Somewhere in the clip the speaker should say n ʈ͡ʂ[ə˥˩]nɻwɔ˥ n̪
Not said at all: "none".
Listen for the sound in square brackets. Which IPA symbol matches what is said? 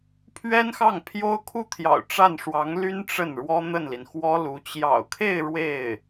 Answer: ə˥˩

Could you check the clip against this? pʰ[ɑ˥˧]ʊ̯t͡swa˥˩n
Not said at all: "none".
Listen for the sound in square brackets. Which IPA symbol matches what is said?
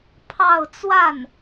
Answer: ɑ˥˧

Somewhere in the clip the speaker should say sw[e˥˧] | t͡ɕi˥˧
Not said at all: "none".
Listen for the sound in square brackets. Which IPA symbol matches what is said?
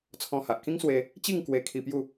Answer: e˧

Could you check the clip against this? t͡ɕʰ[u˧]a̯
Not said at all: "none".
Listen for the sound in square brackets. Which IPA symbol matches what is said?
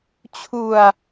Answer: u˨˩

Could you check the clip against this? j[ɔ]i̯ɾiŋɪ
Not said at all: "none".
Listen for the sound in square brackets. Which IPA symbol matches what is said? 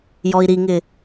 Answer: ɔ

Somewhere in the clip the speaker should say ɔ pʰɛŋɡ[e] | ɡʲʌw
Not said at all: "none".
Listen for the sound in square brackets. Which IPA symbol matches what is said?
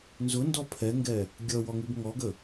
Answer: ɛ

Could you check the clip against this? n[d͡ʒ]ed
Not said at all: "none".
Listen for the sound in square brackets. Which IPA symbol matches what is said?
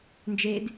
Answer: d͡ʒ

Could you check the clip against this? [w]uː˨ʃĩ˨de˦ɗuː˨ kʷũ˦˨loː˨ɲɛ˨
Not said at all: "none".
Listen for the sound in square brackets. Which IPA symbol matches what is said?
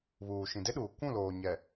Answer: β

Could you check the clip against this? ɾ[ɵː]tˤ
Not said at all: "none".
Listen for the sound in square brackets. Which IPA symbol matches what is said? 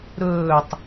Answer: ɵː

